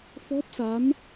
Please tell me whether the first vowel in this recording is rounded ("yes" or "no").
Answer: yes